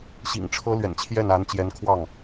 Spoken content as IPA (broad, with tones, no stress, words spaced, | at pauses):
ɕḭ˨˩ŋʈ͡ʂʰɤ˥ lɥɛ̰˨˩nt͡ɕʰjɛ˥˩na˧˥nt͡ɕjɛ˧˥n kʰwɑ˥˩ŋ